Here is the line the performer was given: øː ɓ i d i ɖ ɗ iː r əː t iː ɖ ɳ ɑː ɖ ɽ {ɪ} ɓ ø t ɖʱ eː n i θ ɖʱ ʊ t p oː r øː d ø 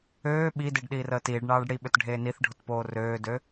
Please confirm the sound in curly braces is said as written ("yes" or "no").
no